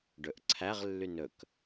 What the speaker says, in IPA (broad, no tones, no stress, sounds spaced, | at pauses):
ɖ ɵ ʔ ǀʰ æ ʁ lː y n ɵ k